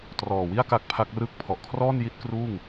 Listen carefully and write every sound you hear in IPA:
t r ɔː˨˩ w i˥˩ a̯ k a˦˥ k̚ pʰ a˦˥ k̚ r ɯ˥˩ k̚ pʰ ɔ˨˩ ʔ kʰ r ɔː˥˩ n j i˦˥ t̚ k r uː˥˩ ŋ

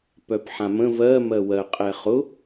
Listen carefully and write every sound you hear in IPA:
p œ p ħ ã m ə̃ v ɜ m ɜ w ɜ qʼ ɛ χ ʊ

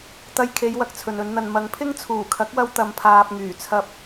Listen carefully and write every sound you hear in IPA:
t̪ ɐ˧ j kʰ e˨˧ j w ɐ˧ k̚ t͡sʰ ɵ˨ n ɵ˨˧ n n̪ ɐ˨ n m ɐ˨˥ ŋ pʰ ɪ˥ ŋ t͡sʰ uː˨˩ kʰ ɐ˨˥ k̚ w ɐ˧ w t̪ ɐ˧ m pʰ aː˧ p̚ ŋ yː˨˩ t͡sʰ ɐ˧ p̚

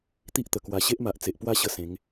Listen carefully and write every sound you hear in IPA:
t̪ i˦ ʔ t̪ ə˨˩ k w a˧ ɕ e˦ ʔ m a˨ ʔ t͡s e˨ ʔ p w a˥˧ ɕ ə˧ s ẽ˨˦ ŋ

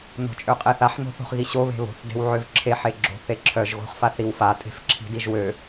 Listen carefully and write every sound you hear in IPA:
n o̤ t͡ʃʼ ø qʼ e θ a ħ n o̤ θ o̤ χ ɣ i ɕ o β e̤ β o̤ θ d e̤ w ʕ ø v ǁʰ e ħ e ɡ͡ǁ o̤ θ e ǁʰ œ ʒ ɣ o̤ χ f a θ ɾ i w f a tʼ e̤ f ǁʰ i̤ d i ʒ w ø

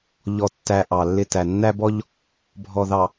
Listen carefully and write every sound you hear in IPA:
ʎ ɔ˨ tː æ˨ ʔ ɑ˨ lː ɪ˦˨ t æ˨ nː æ˦ b ɔ˦ ʎ | bʱ ɔ˨ ð ɑ˨

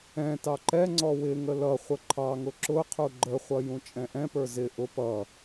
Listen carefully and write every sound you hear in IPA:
ɛ̃ t ɑ ǃ ɛ ŋ͡ǀ ɔ w ɪ ŋ ə l ʌ χʷ ə ǃʰ ɑ ŋ ʊ ǁ ʊ qʰ u ɡ͡ǃ ə χʷ ʌ j ũ t͡ʃʼ ɛ̃ ʔ ɛ̃ p ə˞ z ɪ ʔ ʊ p ʌ

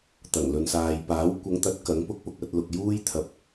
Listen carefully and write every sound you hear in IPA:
t̪ ɐ˨˩ ŋ l ɵ˨ n s aː˨ j p aː˨˥ w kʷ ɐ˨˧ ŋ t̪ ɐ˨˥ t̚ k ɐ˨˥ ŋ p ʊ˥ k̚ p ʊ˨ k̚ ɐ˧ t̚ l ʊ˨ k̚ j uː˥ j t̪ʰ ɐ˨ p̚

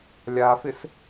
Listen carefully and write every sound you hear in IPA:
lʲ a f ɪ s

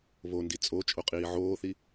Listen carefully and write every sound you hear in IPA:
β o n d i t͡sʼ o t͡ʃʼ o qʼ iː ʕ oː θ i

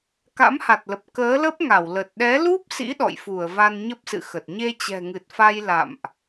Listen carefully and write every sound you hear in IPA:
k a̰˧˥ m h a˨˩ t̚ l ə˨˩ p̚ k əː˨˦ l ə˦˥ p̚ ŋ a˧˩ w l ə˨˩ t̚ ɗ ɛ˨˦ l u˦˥ p̚ s ḭ˧˥ ɗ ɔ̰˧˨ j f u˧˩ ə̯ v a˧ n ɲ ə˦˥ p̚ s ɨ̰˧˨ x ə˨˩ t̚ ɲ e˧ t͡ɕ ɛ̤˨˩ ŋ ɨ˨˩ t̚ f a˧ j l a̰˧˨ m ʔ

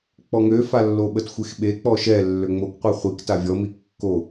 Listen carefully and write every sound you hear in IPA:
k͡p ɔ ŋ ø f a lː o ɓ ə t xʷ e x ɓ e k͡p ɔ ʃ ɛ lː ø ŋ͡m o k qʷ ɛ χʷ i k t a vʲ ɔ m i kː o

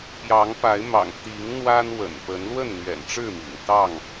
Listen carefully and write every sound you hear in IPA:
p j ɑ˨˦ ŋ p a˨˦ ɪ̯ m ɑ̰˨˩ ŋ t̪ i˨˦ ŋ n̪ w a˦ n w ə̰˨˩ n p ə˨˦ n l w ə˥˨ n n̪ ɥ ɛ̰˨˩ n ʈ͡ʂ ɻ̩˥˨ m ḭ˨˩ ŋ t̪ ɑ˥˨ ŋ

